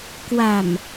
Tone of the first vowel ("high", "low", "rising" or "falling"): low